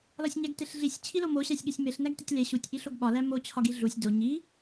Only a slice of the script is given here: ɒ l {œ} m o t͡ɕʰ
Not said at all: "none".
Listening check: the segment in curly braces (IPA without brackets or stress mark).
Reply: æ